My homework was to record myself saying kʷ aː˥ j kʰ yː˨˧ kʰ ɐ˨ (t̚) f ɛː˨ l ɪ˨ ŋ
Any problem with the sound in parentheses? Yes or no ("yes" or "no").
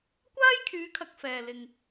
yes